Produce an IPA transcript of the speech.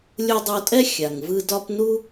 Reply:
lʲ u˧ dˤ o˧ tʼ ɛ˥ xʲ a˩ ŋ v ɯ˧ d ɒ˧ p n u˥

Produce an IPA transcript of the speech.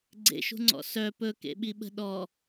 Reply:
ɡ͡ǀ ḛ ʃ ṳ ŋ͡ǀ ɔ̰ s œ p ɵ k ḛ ɓ i ɓ ə̤ ɗ ɔ

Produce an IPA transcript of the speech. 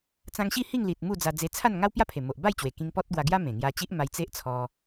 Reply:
t͡s ã˧ ŋ ɕ i˥˧ h i˥˧ ŋ l i˨ t̚ m u˥˧ d͡z a˧ d͡z e˧ t͡sʰ a˥˧ n ŋ a˦ w p j a˥˧ pʰ e˨˩ m o˨ ʔ b a˥˧ j t͡ɕ w e˨˩ k ĩ˧ ŋ p ɔ˦ t̚ ɡ w a˧ ɡ j a˦ m ẽ˨˩ ŋ j a˧ t͡ɕ i˦ ʔ m a˧ j t͡s e˦ ʔ t͡sʰ ɔ˧

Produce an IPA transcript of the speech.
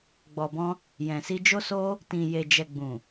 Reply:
ɡ͡b ɔ˨ b ɔ̃˧ | j ɛ̃˨ s i˧ d͡ʒ o˦ s o˦ | t ĩ˨ j e˨ d͡ʒ ɛ˨ ɡ͡b ũ˨

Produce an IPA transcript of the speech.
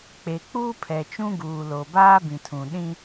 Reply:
k͡p e˨ k͡p uː˦ pʰ ɛ˨ t͡ʃ ũ˦ ɡ uː˨ l o˨ b aː˦ b ĩ˨ tʰ ũ˨ ɗ ĩ˦

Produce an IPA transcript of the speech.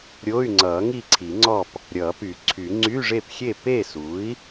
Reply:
ɾʲ o˧˥˧ y̯ ŋ͡ǀ ʌː˨˩˦ ŋ i˥˨ ǀʰ i˨˩˦ ŋ͡ǀ ɔ˥˨ p | ɾʲ ʌː˨˩˦ p y˨˩˦ ǀʰ y˨˩˦ ŋ͡ǀ y˧˥˧ ʐ e˥˨ p xʲ e˥˨ p e˥˨ s u˩˥ i̯

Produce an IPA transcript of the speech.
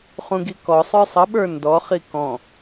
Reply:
χ ũ ɡ i k ɔ sˤ ə˞ sˤ ə ɓ ə˞ n d ɔ χ i k ɔ̃

